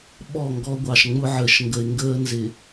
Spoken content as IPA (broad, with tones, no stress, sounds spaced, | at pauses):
ɓ ɔ˦˨ ŋ ɡ ɔ˦ ɡʷ ɑ˨ ʃ ŋ͡m ʊ˦ ʕ əː˨ ʃ ŋ ɡ ə˨ ɪ̯ ŋ ɡ əː˦ n z ɪ˨